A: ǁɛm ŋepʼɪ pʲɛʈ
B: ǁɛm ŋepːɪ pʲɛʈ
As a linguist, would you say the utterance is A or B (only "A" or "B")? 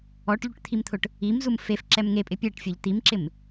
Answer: A